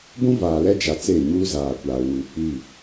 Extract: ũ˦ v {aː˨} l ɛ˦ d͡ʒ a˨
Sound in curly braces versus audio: correct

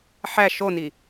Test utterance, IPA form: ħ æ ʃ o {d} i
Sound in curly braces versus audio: incorrect: n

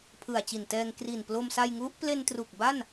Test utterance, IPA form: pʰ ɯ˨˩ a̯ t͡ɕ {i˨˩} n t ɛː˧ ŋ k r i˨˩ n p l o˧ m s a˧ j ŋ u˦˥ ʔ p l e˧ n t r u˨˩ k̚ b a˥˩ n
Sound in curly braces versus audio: correct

